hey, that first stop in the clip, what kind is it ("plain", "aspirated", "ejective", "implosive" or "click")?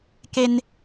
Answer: plain